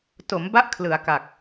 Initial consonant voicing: voiceless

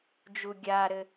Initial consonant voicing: voiced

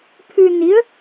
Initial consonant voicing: voiceless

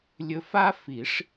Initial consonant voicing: voiced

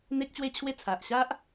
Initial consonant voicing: voiced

